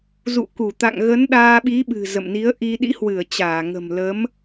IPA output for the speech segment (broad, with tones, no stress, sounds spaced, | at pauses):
z ṵ˧˨ k u˧˩ t̪ a̰˧˨ ŋ ɣ ə˨˦ n ɗ aː˧ ɓ i˨˦ ɓ ɨ̤˨˩ z ə̰˧˨ m n i˨˦ ə̯ ʔ i˧ ɗ ḭ˧˥ h w ɨ˧˩ ə̯ t͡ɕ aː˧˩ ŋ ə̤˨˩ m l ə˨˦ m